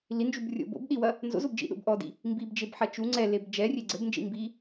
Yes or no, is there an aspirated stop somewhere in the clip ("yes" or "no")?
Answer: no